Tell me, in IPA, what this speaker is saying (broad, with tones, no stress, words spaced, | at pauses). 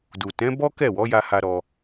du˨ tɛ̃˨˦bɔ˦kɛ˦˨wɔ˨˦ ja˦ha˦ɾɔ˧